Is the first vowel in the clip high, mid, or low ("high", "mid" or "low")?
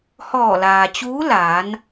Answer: mid